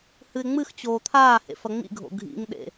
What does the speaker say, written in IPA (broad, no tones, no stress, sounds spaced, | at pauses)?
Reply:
h ɨ ɪ̯ ŋ͡m ɨ x t͡ɕ oː t̪ʰ aː h ḛ f ɐ ŋ͡m ḭ ɡʱ o̰ ɡʱ ḭ ŋ ɗ ḛ